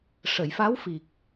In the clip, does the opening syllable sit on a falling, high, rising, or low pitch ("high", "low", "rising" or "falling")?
low